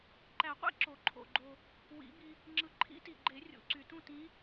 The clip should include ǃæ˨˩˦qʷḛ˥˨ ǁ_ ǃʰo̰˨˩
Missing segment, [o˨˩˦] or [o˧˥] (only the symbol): o˨˩˦